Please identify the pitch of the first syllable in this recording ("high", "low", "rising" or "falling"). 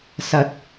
low